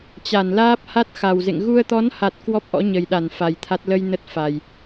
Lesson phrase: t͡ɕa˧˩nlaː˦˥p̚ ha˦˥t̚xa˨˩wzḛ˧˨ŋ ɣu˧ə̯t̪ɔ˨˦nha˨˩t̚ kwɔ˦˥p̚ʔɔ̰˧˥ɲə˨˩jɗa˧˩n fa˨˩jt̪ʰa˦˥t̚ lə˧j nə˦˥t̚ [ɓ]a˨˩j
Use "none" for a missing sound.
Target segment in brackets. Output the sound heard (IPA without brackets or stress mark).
f